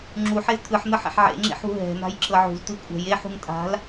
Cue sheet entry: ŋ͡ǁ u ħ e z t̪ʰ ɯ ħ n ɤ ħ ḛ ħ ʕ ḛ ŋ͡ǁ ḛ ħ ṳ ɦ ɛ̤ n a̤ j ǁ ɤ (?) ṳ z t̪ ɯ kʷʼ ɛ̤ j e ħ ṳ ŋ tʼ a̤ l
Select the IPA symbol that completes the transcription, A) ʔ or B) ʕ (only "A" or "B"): B